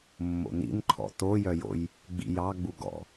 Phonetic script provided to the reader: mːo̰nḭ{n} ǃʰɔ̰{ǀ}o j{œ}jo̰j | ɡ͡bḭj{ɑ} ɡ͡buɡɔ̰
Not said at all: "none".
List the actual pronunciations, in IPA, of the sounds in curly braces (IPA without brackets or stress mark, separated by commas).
n, t, œ, ɑ